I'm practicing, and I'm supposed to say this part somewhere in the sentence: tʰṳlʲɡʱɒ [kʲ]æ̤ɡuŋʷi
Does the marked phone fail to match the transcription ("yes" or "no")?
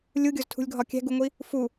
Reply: no